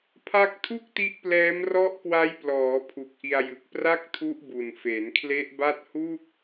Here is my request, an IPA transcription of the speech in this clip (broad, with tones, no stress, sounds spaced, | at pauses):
pʰ a˦˥ k̚ tʰ u˥˩ k̚ t i˦˥ ʔ p l ɛː˦˥ m r ɔ˦˥ ʔ k w a˦˥ j p l ɔː˩˦ pʰ u˨˩ k̚ ʔ i˧ a̯ j ɯ˨˩ k̚ p r a˥˩ k̚ tʰ u˦˥ ʔ b u˨˩ n f e˩˦ n kʰ l e˦˥ ʔ b a˥˩ t̚ h u˥˩ k̚